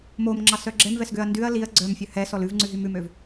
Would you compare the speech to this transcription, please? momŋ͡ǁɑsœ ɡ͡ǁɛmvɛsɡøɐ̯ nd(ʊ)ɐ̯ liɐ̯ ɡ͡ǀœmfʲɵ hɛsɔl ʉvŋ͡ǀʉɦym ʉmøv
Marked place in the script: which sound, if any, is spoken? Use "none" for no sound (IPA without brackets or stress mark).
ʉ